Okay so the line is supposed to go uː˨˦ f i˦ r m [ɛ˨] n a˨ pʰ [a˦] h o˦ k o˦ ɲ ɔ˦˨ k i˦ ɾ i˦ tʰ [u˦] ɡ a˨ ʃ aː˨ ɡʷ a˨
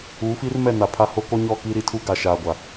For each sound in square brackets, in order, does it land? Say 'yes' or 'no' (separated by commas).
no, yes, yes